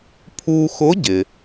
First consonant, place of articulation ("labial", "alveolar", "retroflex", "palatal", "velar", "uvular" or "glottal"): labial